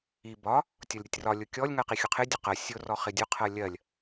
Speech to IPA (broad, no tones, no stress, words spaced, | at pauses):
i bɒ | tʲɒlʲɾʲʌtʲrɒ lʲʊkʲɔlʲ ŋɜqixʲʊqʰɪ dʲʊqɜ sʲʊ rɔχɪdʲʊ qʰɜlʲɜlʲ